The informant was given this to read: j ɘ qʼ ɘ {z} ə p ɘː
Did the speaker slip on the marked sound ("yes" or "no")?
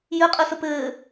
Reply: yes